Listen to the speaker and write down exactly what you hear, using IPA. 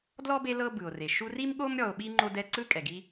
d l ɔ˥ b e˦ l ɤ˦ b ɯ˩ o̯ r e˩ ʃ u˦ r i˥ m ɠ o˥ m ɾʲ ɔ˨ o̯ ɓ i˥ ŋ͡ǃ o˦ d ɛ˦ ǀ ɯ˥ kʼ ɛ˩ ɡ i˦

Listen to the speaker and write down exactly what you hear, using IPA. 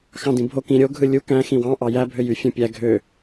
x ɑ̃ d ĩ bʱ o k ĩ ɾʲ o ɡʱ ɯ lʲ u k æ̃ x ĩ w ɑ̃ ʔ ɑ j æ bʱ ø j y fʲ õ pʲ æ ɡʱ ø

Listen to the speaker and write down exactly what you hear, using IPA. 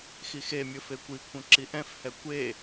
x i x e mʲ ɵ f e kʷ i kʷʰ œ̃ ǁ i ʔ ɛ̃ f h ɛ kʷ e

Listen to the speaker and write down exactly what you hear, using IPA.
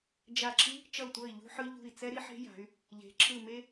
d͡ʒ a˦˨ ǁʰ i˥ | t͡ʃ ʌ˦˨ u̯ tʷ ʌ˦˨ i̯ ʎ ṳ˥ ħ ɯ˥ ʎ ṳ˦˨ i̯ t͡s ɛ˥ ɾ i˥ ħ e̤˥ j a̤˨˦ y̯ | ʎ e̤˨˦ ǁʰ ɯ˦˨ m e˥

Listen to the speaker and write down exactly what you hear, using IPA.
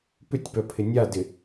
p ʏ tʲ p œ pʰ ɪ nʲ a d ɪ

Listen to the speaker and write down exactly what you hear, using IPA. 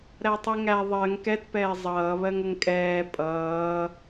ɾ æ tˤ i ŋ æ ðˤ ɜ ŋ k ɛ t p ɛː zˤ ʌː β ɜ ŋ ə ŋ kʼ ɛː pʼ ʌː

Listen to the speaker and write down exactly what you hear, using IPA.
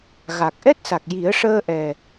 ɣ a˨˩ k̚ ʔ ɛ˦˥ t̚ s a˨˩ k̚ j i˨˩˦ ə̯ ʂ əː˧ ʔ ɛ˨˩

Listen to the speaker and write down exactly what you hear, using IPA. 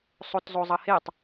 sˤ o t zˤ o zˤ ʌ h e tˤ

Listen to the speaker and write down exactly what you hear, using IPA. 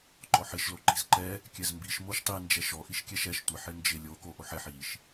ǃ ɔ ħ ɪ ʃ l o ǃ i̤ z ǃ ɛ | kʲ ɛ z m b i ʃ m o ʃ tˤ i n d͡ʒ ɛ ʃ ɔ ʔ i ʃ kʲ ɛ ʃ ɛ ʃ tʷ ɪ ħ ɪ n d͡ʒ ɪ lʲ o k o ʔ o ħ ɛ ħ i ʃ

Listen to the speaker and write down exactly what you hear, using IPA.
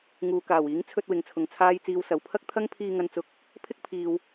ŋ uː˨ k aː˨˩ w iː˨˥ ŋ t͡sʰ ɵ˧ t̚ w ɪ˨ ŋ t͡sʰ ʊ˨ ŋ t͡sʰ aː˥ j t͡s iː˧ w s ɐ˨ w pʰ ɐ˥ k̚ t̪ʰ ɐ˥ ŋ pʰ iː˧ ŋ ɐ˧ n t͡s ʊ˨˥ k̚ | pʰ ɪ˥ k̚ pʰ iː˨ w

